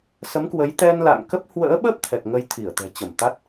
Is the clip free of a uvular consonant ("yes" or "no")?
yes